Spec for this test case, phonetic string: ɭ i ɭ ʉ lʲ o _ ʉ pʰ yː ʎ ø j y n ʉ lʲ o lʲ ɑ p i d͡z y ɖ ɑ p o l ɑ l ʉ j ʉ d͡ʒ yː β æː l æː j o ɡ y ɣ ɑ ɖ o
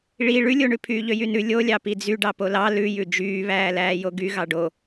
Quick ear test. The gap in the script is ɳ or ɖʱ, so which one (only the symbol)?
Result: ɳ